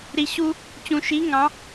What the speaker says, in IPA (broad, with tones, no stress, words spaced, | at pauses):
ɾi˨ ɕu˦ | t͡ɕũ˨ ʃi˨˦ ŋɑ̃˨˦